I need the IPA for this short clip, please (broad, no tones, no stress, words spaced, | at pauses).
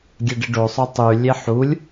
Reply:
ɡʲɛɖɪɖo sˤʊtˤy lʲeħulʲ